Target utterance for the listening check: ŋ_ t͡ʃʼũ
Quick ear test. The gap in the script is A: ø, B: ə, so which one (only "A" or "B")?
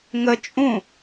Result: B